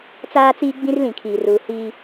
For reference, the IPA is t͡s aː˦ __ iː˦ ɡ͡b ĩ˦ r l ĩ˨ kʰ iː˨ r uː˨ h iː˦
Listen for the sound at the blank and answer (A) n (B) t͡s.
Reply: B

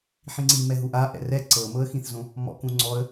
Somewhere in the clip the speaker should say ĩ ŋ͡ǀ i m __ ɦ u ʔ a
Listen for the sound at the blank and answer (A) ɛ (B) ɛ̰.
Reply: A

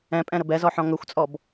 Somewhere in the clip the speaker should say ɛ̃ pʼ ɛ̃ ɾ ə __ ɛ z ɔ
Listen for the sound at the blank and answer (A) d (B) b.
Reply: B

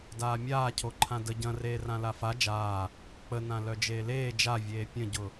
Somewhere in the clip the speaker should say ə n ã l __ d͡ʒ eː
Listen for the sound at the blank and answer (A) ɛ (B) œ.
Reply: B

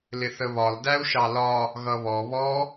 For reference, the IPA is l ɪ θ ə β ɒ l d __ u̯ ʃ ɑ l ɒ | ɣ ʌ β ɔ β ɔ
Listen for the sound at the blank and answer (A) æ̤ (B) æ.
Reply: B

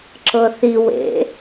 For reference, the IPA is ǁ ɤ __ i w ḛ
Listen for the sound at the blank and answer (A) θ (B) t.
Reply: A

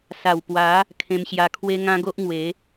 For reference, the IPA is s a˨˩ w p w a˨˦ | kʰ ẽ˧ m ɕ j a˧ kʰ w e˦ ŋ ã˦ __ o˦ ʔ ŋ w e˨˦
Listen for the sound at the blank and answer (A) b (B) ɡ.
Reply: B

